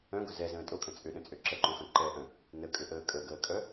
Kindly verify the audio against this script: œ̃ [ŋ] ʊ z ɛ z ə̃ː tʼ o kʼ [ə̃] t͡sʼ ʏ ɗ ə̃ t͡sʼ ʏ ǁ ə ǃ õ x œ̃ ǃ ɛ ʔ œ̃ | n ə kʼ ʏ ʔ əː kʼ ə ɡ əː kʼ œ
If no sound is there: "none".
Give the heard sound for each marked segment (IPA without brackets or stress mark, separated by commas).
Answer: ɡ, ə̃